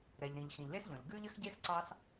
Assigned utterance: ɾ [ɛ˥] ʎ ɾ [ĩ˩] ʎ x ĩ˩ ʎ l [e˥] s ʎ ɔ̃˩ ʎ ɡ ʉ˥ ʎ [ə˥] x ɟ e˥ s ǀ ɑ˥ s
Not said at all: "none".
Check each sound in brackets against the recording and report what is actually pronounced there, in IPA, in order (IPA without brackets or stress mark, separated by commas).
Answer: ɛ˩, ĩ˩, e˥, ə˥